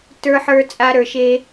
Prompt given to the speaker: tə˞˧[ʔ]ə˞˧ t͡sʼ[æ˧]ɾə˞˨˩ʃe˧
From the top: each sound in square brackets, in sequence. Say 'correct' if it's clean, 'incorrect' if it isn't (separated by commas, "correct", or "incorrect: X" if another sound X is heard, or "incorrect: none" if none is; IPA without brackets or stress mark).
incorrect: ħ, incorrect: a˧